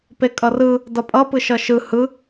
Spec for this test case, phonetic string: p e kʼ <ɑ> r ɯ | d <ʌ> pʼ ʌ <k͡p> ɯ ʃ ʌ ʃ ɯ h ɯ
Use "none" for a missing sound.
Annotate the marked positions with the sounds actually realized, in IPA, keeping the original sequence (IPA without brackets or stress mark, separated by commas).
ʌ, ʌ, p